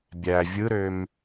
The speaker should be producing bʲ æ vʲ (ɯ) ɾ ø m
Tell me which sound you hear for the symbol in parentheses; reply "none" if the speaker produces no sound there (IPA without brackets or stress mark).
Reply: ɯ